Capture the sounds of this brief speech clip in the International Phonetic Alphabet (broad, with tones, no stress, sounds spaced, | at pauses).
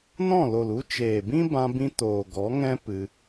n ɔ̃˦˨ l o˨ l u˧ t͡ʃ eː˨ b ĩ˦ b ã˧ b ĩ˧ t oː˨ ɡ ɔ˨˦ ŋ ɛ̃˦ p ɨ˧